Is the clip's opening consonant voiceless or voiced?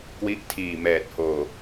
voiceless